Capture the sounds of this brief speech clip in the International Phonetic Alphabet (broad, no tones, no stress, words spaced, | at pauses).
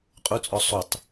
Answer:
qʼut͡sʼɔ sˤutˤ